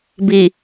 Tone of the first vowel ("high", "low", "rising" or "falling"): low